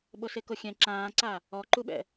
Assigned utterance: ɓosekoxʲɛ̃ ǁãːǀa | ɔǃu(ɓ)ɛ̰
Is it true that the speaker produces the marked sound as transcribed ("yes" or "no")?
yes